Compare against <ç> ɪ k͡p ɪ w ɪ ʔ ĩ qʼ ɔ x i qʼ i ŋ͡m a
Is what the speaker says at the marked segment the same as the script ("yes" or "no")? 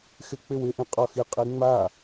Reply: no